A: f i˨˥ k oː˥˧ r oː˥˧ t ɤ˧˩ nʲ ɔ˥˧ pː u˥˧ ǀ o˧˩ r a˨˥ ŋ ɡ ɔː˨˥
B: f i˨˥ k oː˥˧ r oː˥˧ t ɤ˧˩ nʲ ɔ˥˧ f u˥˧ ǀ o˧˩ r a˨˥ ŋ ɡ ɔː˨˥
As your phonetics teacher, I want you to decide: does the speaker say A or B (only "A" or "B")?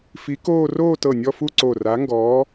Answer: B